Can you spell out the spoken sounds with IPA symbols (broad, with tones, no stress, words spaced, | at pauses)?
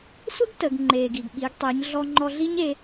sʷə˥ɡ tə˩˧ɡ ŋ͡ǃeː˩ɡi˩ɡ ɓi˩˧ɡtˤi˩˧ɲ ɮɔ˧ŋ͡ǃɔ˧ɮi˥ɲ e˩˧